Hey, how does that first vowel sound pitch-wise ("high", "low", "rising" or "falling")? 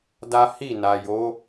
high